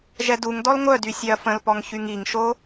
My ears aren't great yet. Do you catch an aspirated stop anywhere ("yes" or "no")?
no